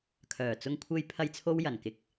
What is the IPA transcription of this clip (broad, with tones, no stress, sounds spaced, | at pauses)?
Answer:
kʰ œː˨˩ t͡s ʊ˧ ŋ kʷʰ e˧ j pʰ ɐ˥ j t͡sʰ o˥ w j ɐ˨˩ n k ɪ˧ k̚